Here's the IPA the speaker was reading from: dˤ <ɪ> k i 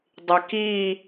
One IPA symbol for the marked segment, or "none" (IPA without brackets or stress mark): ɪ